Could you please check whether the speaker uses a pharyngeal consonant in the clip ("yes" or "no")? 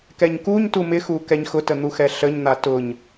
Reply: no